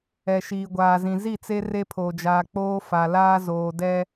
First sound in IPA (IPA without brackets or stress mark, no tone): ɛ